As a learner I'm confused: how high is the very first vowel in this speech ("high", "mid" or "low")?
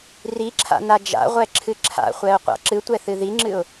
high